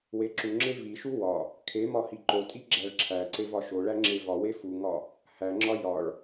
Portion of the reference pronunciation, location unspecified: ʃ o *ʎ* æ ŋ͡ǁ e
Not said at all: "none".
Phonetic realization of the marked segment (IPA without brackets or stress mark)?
ɭ